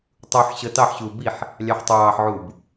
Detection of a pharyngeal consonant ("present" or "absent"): present